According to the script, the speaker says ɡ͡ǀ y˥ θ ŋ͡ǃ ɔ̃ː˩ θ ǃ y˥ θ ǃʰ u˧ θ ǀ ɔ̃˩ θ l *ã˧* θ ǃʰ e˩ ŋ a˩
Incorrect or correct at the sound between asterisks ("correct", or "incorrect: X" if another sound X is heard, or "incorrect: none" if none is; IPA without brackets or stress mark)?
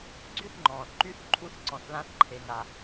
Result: correct